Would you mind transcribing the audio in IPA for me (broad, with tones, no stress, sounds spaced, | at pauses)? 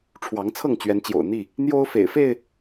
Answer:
ʈ͡ʂʰ w ɑ˨˦ ŋ t͡sʰ ɤ˥˨ ŋ t͡ɕ ɥ ɛ˨˦ n t͡ɕ j o̰˨˩ ʊ̯ n̪ i˥˨ | n̪ j o˦ ʊ̯ f ḛ˨˩ ɪ̯ f e˥˨ ɪ̯